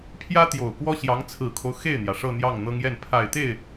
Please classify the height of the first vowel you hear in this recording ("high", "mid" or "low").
low